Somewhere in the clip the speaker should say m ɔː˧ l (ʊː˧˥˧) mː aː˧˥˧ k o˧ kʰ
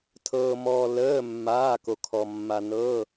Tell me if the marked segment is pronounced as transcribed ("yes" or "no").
no